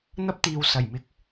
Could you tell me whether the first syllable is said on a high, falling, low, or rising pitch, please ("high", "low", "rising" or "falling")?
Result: high